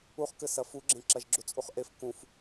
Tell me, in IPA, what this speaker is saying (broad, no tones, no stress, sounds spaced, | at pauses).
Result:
u χ k ɘ s ɐ f u ɡ͡ǁ ẽ ǁ ɐ ʒ ɡ͡ǁ u t͡sʼ u χ ʔ e f k ũ f